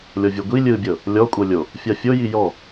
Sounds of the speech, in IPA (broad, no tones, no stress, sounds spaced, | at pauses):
lʲ ɔ vʲ u ɡʷ i lʲ ɯ bʲ ɤ | lʲ ɔ kʷʼ ɤ lʲ o | fʲ a fʲ o j i j ɔ